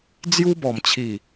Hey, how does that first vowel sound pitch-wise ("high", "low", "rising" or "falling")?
high